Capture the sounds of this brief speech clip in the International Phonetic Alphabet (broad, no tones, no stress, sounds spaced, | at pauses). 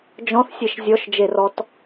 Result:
d͡ʒ ɔ̃ θ sʲ e ʃ zʲ ɔ ʃ d͡ʒ e r ɔ t